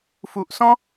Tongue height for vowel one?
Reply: high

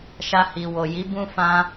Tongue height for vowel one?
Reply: low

